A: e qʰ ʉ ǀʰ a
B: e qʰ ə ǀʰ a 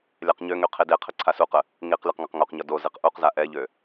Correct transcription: B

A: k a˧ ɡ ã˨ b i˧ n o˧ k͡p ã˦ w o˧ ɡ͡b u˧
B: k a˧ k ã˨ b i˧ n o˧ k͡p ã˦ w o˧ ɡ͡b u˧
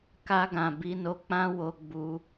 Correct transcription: A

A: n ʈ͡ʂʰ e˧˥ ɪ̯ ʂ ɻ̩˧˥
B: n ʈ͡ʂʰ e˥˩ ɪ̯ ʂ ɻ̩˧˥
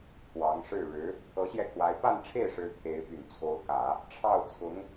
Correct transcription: B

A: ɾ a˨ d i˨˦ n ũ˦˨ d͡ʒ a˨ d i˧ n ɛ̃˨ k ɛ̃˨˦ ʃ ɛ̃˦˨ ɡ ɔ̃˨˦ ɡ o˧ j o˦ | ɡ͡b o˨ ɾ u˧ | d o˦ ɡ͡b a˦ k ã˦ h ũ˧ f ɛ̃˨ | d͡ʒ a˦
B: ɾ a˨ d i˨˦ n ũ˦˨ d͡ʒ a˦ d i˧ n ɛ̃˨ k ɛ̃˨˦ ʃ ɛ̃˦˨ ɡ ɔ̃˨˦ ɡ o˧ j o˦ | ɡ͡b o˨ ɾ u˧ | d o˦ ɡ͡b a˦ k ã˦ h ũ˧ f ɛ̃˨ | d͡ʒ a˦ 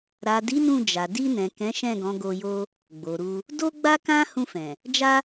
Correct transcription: A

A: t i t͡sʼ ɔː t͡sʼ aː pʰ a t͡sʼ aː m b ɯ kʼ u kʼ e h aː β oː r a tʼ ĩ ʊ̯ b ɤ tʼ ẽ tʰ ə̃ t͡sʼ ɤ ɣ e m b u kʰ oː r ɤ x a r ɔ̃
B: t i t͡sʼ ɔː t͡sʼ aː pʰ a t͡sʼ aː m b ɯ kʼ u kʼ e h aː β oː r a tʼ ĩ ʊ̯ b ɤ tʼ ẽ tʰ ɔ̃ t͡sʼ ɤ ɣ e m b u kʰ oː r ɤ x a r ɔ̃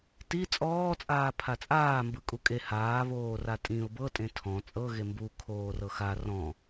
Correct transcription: B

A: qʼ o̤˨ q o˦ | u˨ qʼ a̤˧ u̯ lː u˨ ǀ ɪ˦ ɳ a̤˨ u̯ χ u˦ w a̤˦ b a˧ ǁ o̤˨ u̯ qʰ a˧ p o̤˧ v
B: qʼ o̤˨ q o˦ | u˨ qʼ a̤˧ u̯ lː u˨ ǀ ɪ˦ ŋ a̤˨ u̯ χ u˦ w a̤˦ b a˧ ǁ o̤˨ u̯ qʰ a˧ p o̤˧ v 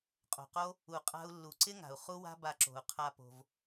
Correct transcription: B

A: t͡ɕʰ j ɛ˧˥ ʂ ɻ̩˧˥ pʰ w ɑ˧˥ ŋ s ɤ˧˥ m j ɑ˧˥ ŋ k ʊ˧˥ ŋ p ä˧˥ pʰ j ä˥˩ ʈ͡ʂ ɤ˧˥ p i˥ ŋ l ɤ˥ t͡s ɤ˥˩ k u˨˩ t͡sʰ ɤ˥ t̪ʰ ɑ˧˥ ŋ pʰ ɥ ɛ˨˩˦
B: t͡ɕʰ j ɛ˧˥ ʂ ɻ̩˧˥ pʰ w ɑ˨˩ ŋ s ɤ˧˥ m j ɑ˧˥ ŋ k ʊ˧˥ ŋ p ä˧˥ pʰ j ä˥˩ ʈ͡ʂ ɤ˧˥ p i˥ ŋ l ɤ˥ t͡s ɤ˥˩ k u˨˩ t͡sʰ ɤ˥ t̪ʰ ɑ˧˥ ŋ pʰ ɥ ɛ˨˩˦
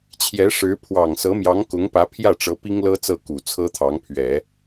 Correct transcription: B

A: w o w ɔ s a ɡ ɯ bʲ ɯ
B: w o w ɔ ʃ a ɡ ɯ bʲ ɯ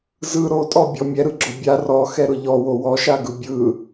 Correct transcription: B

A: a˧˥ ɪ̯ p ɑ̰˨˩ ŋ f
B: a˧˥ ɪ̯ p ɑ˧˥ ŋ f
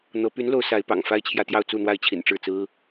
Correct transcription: A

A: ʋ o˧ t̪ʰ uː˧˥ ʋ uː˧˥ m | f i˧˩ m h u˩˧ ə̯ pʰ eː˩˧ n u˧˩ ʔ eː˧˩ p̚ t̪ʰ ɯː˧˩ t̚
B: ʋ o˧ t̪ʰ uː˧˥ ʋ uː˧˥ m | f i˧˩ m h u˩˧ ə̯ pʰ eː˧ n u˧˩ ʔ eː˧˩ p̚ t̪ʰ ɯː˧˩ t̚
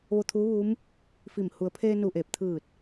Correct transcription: B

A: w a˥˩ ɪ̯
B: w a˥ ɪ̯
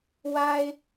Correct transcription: B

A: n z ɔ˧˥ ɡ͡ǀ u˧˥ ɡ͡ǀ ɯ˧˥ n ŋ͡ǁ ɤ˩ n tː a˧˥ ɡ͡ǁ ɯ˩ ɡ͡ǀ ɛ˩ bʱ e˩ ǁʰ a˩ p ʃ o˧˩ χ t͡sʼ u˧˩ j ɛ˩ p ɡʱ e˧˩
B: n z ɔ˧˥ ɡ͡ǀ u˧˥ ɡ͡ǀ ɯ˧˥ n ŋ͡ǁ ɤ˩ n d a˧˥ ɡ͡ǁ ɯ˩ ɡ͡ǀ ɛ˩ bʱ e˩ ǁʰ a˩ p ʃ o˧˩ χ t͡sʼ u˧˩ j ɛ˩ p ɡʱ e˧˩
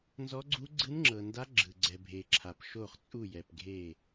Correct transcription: B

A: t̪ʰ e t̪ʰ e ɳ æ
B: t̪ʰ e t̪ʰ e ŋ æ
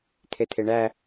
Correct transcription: A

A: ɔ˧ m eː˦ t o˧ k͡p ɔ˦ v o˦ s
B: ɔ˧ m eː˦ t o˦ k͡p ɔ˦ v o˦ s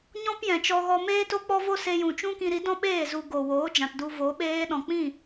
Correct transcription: B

